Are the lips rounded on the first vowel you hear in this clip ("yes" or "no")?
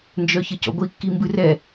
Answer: yes